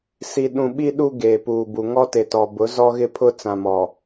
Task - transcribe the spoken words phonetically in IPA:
s i˨ ɗ ũ˨ ɓ i˦ ɗ u˦ ɡ eː˨ p uː˨ b u˨ ŋ ɔ˦ t e˨ t ɔ˨ b ʊ˨˦ z ɔ˦ ɣ ɪ˦ pʰ ʊ˦ t͡s ã˨ m ɔ˨

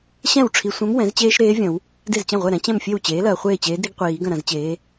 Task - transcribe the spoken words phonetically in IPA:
ɕ ɛ̃˥˩ w ʈ͡ʂʰ i˨ sʷ ɛ̃˧˥ m w ɛ̃˩˥ z t͡ɕ eː˥ ʃ ɾ eː˧˥ vʲ ɐ̃˨˩˦ w | d e˥˩ z t͡ɕ ɐ̃˥˩ ʁʷ ɛ˥˩ ɾ ɛ̃˧˥ t͡ɕ ɛ̃˥˩ m fʲ e˥˩ w t͡ɕ eː˩˥ l ɐː˨ χʷ eː˥˩ t͡ɕ eː˧˥ d ɾ i˥ ɡ qʷ iː˨˩˦ ɡ ɐ̃˥˩ ɾ ɐ̃˨˩˦ z t͡ɕ eː˩˥

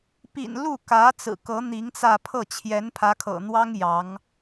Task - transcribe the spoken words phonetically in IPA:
p ḭ˨˩ n l u˥˩ k ä˧˥ t͡s ɹ̩˨˩ k ɤ˧˥ n̪ i˧˥ ŋ t͡s ä˥˧ pʰ ɤ˥˩ t͡ɕʰ j ɛ˧˥ n pʰ ä˧˥ kʰ ɤ̰˨˩ n̪ w ɑ˥ ŋ j ɑ˧˥ ŋ

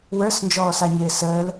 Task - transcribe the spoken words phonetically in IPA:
w ə˞ s n d͡ʒ ɔː s a ɲ ɪː s əː l

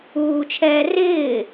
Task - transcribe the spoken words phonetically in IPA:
uː t͡ʃʰ ɛː r ɪː

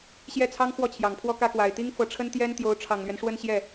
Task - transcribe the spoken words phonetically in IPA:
ɕ j ɛ˥˩ t͡sʰ ɑ˥ ŋ x w ɔ˥˩ t͡ɕʰ j ɑ˨˩ ŋ pʰ w ɔ˥˧ k ä˥˩ k w a˨˩ ɪ̯ t̪ i˥ ŋ f ɤ˧˥ ʈ͡ʂʰ ə˥ n t̪ j ɛ˥ n t̪ j o˧˥ ʊ̯ ʈ͡ʂʰ ɑ˨˩ ŋ l ɥ ɛ˦ n ʂ w ə˥˧ n ɕ j ɛ˥˩

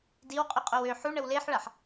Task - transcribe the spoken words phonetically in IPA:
d i w qʼ y qʼ o w ø ħ u ɳ ə w l e ħ ɭ a ħ

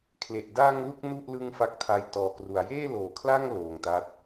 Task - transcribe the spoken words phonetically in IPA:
kʰ l e˨˩ ʔ d a˧ ŋ l u˥˩ k̚ n u˥˩ ʔ l ɯ˦˥ ŋ f a˦˥ k̚ tʰ a˧ j t ɔː˨˩ k r u˩˦ a̯ j eː˥˩ l oː˩˦ kʰ l a˥˩ ŋ l oː˨˩ ŋ t a˦˥ t̚

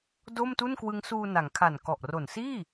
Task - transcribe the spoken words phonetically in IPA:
d o˥˩ m t u˥˩ n k w ɯ˦˥ ŋ s uː˧ n a˩˦ ŋ kʰ a˨˩ n k ɔ˨˩ ʔ r o˨˩ n s iː˥˩

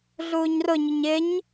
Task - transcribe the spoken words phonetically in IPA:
ɮ uː ɲ r ʊ ɲ ʊ ɲ ɪ ɲ

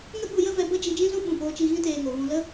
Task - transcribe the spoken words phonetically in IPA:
ŋ ə˦ ɓ u˧ j ə˦ v ɛ˧ b ə˦ d͡ʒ i˧ d͡ʒ ĩ˦ z ũ˦ ɓ ũ˦˨ p oː˦ t͡ʃ i˦ ɣ ĩ˦ t eː˧ ŋ o˨ ɣ ũ˧ l ə˦

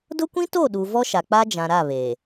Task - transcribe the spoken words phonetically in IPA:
d ʊ˦ kʷ ĩ˦ t o˦˨ ɗ u˨ v ɔ˦ ʃ a˨ k͡p a˦ d͡ʒ ã˨ ɾ a˦˨ β eː˨

